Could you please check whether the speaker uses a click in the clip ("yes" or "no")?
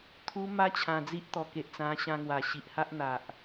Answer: no